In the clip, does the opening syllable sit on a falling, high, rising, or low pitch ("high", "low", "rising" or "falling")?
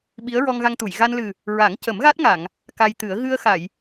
rising